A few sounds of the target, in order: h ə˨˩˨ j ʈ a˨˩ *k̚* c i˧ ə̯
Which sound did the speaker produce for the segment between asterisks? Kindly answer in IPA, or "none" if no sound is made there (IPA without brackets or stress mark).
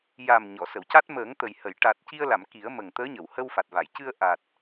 t̚